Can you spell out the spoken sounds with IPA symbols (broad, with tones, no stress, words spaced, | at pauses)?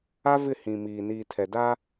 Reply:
a˦vɪ˦˨ hĩ˨miː˨ niː˨tʰɛ˨ da˦